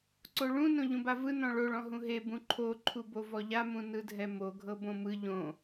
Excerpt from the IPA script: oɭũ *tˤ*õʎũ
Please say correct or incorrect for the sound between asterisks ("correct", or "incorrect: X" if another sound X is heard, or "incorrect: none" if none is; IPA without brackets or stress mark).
incorrect: n